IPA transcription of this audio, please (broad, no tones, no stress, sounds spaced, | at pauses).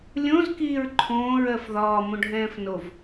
lʲ õ z k iː ɹ ǃʰ õː ɹ ɜ f ð ɒː m õ ɖʱ ɛ̃ː f n o v